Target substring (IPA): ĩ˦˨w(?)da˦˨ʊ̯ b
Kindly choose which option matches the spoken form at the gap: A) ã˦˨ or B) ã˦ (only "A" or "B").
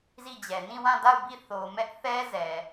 A